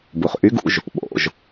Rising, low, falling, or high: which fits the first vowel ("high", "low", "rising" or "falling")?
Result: low